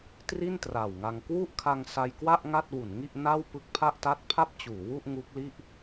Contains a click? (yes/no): no